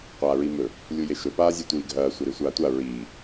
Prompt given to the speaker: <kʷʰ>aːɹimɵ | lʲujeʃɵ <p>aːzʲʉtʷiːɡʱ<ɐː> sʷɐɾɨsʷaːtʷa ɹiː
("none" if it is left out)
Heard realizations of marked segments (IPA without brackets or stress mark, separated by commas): qʷ, p, ɐː